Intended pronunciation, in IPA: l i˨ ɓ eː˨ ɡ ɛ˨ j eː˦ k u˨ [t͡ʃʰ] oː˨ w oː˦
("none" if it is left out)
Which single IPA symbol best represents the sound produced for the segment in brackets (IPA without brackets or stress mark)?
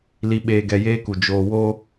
d͡ʒ